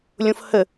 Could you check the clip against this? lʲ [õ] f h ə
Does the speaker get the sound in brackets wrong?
no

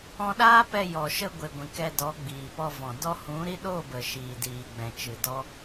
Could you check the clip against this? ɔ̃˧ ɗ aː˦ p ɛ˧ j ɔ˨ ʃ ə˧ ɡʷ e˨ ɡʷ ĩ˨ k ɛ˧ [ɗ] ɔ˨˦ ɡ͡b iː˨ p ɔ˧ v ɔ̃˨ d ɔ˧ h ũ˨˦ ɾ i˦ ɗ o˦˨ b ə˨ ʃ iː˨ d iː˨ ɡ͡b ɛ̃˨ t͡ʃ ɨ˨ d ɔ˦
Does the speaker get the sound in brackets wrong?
yes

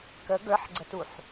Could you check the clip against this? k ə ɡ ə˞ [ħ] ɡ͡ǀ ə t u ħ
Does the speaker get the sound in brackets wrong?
no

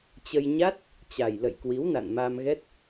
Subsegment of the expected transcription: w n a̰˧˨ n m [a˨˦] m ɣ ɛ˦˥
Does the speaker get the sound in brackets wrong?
yes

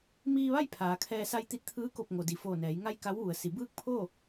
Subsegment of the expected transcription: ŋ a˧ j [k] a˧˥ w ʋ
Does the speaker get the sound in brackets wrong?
no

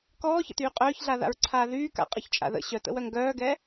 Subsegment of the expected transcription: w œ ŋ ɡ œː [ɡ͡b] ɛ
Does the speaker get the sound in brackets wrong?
yes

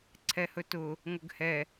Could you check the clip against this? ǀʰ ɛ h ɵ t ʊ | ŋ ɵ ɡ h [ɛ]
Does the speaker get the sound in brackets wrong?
no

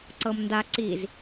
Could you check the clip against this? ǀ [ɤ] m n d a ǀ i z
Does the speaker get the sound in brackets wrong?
no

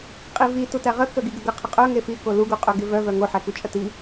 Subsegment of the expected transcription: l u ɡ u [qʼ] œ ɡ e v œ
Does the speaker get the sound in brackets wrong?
no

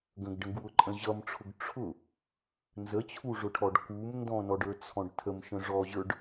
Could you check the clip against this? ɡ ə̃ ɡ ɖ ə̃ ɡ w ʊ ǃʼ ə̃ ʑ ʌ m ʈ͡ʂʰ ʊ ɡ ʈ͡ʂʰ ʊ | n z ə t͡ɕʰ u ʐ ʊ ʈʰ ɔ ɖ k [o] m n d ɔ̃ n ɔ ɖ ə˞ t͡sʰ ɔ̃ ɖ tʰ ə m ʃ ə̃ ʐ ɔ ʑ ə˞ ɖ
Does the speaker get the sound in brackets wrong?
yes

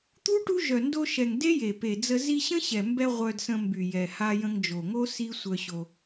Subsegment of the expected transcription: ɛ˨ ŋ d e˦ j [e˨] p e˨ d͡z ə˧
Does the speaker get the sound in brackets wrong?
no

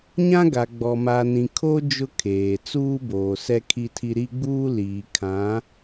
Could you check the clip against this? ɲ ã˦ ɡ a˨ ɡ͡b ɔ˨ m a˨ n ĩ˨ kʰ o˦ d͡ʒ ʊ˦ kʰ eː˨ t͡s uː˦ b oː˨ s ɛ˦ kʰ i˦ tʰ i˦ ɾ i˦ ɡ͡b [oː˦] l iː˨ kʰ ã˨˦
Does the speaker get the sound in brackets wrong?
yes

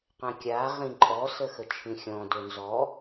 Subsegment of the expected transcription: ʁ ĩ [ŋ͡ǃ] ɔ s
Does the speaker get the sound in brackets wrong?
yes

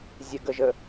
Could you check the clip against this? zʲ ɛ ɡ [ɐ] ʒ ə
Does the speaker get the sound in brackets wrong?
yes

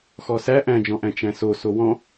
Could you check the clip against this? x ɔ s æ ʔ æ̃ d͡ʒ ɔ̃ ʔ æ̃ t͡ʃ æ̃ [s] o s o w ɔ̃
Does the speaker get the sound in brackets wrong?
no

